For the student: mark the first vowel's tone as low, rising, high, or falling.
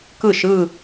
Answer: falling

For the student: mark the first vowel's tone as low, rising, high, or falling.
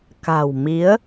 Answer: low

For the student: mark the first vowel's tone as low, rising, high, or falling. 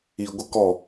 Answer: low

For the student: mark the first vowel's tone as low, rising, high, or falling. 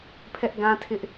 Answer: high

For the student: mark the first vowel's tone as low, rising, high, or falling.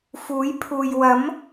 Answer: rising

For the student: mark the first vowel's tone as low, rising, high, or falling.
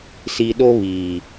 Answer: low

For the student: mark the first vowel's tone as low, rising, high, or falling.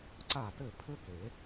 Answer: falling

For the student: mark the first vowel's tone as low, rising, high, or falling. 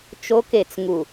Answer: high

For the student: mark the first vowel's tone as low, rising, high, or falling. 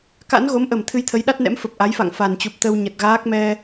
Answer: rising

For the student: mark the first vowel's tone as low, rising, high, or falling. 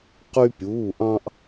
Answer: high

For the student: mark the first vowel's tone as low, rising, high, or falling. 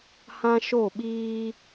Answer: high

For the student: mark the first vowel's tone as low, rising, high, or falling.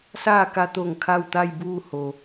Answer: falling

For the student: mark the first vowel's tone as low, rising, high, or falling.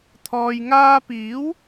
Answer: low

